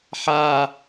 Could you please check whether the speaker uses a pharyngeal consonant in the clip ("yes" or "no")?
yes